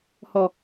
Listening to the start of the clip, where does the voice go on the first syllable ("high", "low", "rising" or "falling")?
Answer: low